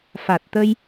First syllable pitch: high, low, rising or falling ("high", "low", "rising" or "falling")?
low